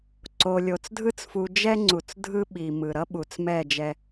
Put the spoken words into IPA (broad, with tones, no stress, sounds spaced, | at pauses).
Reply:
ǀ o˨ lʲ o˨ t͡s dʱ ɯ˦ t͡s f u˨ d͡ʒ ɛ˦ ŋ͡ǀ u˨ t͡s dʱ ɯ˦ ɓ i˨ m ɯ˨ ɾ ʌ˦ ɓ u˨ t͡s m ɛ˦˨ d͡ʒ ɛ˦